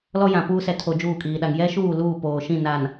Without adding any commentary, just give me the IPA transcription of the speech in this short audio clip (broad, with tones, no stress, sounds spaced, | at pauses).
l ɔ˦ j ã˨ p uː˦ s ɛ˨ tʰ o˨ d͡ʒ uː˦˨ kʼ iː˨ ɗ a˨ ŋ j ɛ˦ ʃ uː˦˨ l uː˦˨ p oː˨ ʃ ĩ˦˨ n a˨ n